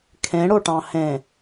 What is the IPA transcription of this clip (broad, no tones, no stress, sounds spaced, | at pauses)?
kʰ ẽ ɽ o ʈ ɑ̃ h ẽ